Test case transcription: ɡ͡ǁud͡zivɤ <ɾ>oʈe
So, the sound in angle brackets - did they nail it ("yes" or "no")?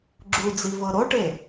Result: yes